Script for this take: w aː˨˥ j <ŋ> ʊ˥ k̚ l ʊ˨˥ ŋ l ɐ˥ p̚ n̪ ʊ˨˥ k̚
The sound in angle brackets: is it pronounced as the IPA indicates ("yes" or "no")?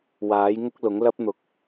yes